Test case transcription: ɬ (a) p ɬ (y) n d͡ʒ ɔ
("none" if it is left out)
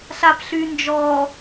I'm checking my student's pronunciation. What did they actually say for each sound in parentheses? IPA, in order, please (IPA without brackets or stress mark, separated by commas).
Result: a, y